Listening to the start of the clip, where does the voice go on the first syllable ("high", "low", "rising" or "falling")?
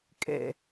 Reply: low